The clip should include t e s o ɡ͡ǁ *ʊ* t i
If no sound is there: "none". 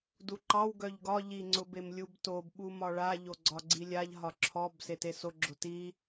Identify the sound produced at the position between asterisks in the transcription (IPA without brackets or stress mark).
ʊ